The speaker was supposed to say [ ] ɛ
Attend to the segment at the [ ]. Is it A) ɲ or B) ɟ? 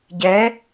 B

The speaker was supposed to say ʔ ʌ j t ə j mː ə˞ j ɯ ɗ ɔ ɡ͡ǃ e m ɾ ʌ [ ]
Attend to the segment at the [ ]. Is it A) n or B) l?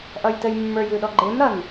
A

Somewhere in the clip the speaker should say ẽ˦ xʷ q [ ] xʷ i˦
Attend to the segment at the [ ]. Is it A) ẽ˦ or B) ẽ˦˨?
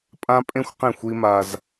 B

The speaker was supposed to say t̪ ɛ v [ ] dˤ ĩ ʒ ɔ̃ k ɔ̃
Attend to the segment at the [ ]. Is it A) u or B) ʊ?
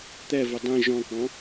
B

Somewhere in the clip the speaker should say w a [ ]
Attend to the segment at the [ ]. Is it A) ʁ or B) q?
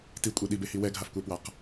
B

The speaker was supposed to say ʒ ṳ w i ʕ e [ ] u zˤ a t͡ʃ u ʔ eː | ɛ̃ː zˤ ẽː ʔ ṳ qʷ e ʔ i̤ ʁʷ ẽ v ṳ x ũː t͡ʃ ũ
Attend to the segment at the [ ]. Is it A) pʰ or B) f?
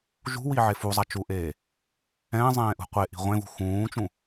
B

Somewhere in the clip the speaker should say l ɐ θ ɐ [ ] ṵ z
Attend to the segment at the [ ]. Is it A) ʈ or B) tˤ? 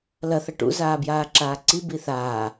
A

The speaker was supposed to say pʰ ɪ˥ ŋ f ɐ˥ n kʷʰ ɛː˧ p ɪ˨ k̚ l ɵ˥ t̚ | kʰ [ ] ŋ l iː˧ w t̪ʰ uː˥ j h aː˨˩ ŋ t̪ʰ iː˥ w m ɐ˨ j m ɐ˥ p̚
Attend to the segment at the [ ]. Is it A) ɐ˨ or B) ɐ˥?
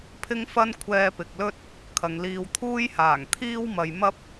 A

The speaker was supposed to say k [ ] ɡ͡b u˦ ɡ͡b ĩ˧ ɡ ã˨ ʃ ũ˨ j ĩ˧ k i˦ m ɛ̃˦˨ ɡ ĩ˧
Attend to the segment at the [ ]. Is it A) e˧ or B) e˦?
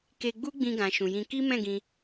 A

